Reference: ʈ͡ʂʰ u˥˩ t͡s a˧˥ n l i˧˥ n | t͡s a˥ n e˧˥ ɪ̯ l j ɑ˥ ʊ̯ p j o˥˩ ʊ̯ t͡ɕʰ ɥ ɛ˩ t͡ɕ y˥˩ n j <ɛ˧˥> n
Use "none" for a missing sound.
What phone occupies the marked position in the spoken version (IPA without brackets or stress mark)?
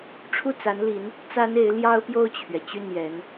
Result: ɛ˧˥